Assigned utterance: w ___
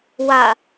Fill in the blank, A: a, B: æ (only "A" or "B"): A